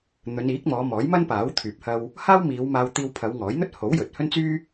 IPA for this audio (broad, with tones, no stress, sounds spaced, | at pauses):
n̪ ɵ˨˧ n iː˨˥ k̚ m ɔː˨˧ m ɔː˨˥ j m ɐ˥ n p aː˨˥ w t̪ʰ yː˨ p̚ h ɐ˧ w | h aː˥ w m iː˨˧ w m aː˧ w t̪ iː˧ w pʰ ɐ˨˧ w ŋ ɔː˨˥ j n̪ ɵ˥ t̚ h o˨˥ w j ɵ˨ t̚ h ɵ˥ n t͡s yː˥